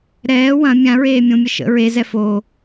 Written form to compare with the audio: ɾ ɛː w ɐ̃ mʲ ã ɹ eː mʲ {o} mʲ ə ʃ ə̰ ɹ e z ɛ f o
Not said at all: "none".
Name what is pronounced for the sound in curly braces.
õ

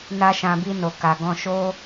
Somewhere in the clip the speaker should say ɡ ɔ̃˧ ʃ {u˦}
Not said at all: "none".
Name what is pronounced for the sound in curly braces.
o˦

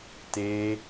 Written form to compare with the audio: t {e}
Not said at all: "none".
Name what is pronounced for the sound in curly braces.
e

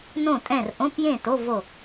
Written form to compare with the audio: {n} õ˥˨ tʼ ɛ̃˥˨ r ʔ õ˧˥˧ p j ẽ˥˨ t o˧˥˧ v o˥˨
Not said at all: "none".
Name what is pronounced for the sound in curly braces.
n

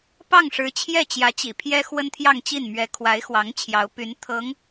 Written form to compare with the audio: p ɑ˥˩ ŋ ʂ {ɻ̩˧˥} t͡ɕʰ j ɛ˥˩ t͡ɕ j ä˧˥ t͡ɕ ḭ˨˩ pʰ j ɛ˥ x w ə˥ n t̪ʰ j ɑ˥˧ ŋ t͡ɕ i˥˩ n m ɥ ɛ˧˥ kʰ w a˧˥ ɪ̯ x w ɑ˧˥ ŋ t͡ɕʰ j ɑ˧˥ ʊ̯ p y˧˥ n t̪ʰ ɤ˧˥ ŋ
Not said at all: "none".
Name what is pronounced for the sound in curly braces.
ɻ̩˧˥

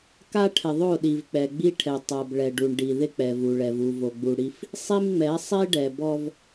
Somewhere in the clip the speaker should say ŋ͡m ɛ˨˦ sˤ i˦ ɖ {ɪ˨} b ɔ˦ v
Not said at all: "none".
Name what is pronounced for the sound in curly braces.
ɛ˨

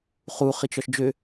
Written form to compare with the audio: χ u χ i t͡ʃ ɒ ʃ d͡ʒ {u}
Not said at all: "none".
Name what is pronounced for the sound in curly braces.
ø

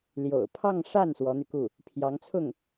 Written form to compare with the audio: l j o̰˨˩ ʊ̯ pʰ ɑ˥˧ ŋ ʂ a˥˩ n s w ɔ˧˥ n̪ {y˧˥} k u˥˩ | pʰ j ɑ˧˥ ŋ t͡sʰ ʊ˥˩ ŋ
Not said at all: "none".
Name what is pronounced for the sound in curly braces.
y˧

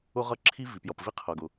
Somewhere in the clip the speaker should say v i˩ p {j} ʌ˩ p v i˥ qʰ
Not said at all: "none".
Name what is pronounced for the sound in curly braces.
j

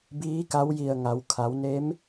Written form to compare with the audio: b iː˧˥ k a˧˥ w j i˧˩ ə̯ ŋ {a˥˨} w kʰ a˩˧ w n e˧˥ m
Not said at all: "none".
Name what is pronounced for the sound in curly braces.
a˩˧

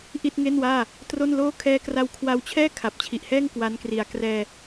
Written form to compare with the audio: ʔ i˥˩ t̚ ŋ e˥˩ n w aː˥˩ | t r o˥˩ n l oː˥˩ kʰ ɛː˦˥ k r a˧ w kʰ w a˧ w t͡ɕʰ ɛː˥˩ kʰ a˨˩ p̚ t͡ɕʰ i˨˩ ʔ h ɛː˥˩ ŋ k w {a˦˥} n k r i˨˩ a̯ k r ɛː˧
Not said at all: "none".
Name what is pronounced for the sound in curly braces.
a˦˥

